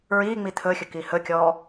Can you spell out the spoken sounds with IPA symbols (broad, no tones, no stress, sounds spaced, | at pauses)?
ɹ iː ŋ͡m i t̪ʰ ɵ xʲ ɵ k i h ɵ kʲ ɔː